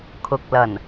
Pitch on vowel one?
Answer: low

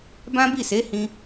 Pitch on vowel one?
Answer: high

